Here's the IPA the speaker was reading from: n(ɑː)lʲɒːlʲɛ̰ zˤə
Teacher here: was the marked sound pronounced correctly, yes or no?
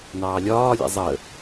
yes